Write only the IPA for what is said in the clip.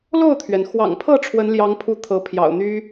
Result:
lo˥˨ʊ̯t̪ʰɥɛ˩nxwɑ̰˨˩ŋpʰɤ˥˨ ʈ͡ʂʰwə˨˦nljɑ˨˦ŋpʰu˨˦ t̪ʰɤ˨˦pʰjɑ̰˨˩ʊ̯n̪y˦

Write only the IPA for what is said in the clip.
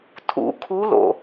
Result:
tʰṵ˨˩˦ kʰu˧˥lo̰˨

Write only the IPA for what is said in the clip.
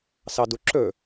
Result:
sɑduǁɵ

